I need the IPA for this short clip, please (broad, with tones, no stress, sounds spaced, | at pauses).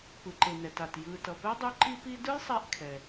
p ɯ˩ ǃ e˩ n ɛ˩ t a˩ t j ɯ˨ t ʌ˩ p ɛ˥ dˤ u˦ ǃ i˦ p i˦ d ɯ˥ j sˤ ɛ˦ ʔ kʰ ɛ˩